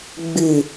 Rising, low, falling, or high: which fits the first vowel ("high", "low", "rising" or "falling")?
low